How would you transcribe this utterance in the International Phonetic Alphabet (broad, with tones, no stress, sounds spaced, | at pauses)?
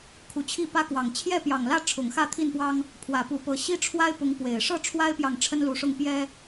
kʰ u˨˦ t͡ɕʰ i˥˨ p ä˦ k w ɑ˨˩ ŋ t͡ɕʰ j ɛ˥˨ p j ɑ˨˩ ŋ l ä˥˨ ʈ͡ʂʰ ʊ˨˩ ŋ x ä˥˨ t̪ʰ i˥˨ n p w ɑ˦ ŋ | pʰ w ä˨˩ p u˨˦ p ɤ˨˩ ɕ i˦ ʈ͡ʂʰ w a˦ ɪ̯ p ʊ˨˦ ŋ p w e˨˩ ɪ̯ ʂ ɤ˥˨ ʈ͡ʂʰ w a˦ ɪ̯ p j ɑ˨ ŋ ʈ͡ʂʰ ə˦ n l u˨˦ ʂ ʊ˥˨ ŋ p j ɛ˦